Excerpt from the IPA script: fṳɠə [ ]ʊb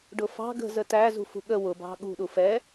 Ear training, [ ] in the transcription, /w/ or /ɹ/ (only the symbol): w